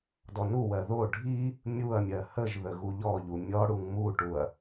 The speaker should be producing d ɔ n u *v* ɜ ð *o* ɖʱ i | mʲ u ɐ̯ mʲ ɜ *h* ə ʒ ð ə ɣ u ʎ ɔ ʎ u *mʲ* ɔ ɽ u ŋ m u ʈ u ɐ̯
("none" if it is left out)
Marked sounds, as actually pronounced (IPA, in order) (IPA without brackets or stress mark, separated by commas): w, o, h, mʲ